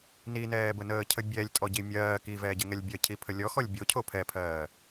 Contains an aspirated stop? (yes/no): yes